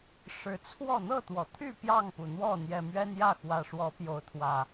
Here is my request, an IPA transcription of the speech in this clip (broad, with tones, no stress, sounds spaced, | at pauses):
ʂ ɻ̩˨˦ t͡sʰ w ɔ˥˨ n̪ ɤ˥˨ t̪ w ɔ˩ t̪ʰ y˥˨ p j ɑ˥˨ ŋ p u˩ n̪ w ɔ˥˨ n̪ j ɛ˨˩ m ɥ ɛ˦ n j ä˥˨ x w ä˨˩ ʂ w ɔ˨˦ p j o˨˦ ʊ̯ t̪ʰ w ä˨˩